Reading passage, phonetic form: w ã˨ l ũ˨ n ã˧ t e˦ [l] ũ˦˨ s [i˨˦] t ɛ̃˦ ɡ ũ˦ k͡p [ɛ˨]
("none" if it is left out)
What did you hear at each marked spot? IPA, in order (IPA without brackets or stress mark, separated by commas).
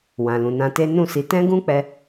n, i˨˦, ɛ˧